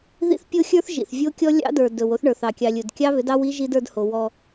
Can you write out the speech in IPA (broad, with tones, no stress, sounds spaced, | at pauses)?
ð ḭ˦ θ pʲ o˦ xʲ ə˞˦ θ ʒ ḭ˨ θ vʲ o˦ kʲ ɔ˦ lʲ ɑ̰˦ d ə˞˨ d ɵ˨ w o˦ θ ɳ ə˞˨ θ ɑ˨ kʲ ɑ˨ lʲ ɵ˨ d kʲ ɑ˦ β ʏ˨˦ d ɑ˦ w i˦ ʒ i˦ d ə˞˨˦ d h o˨ w ɔ˦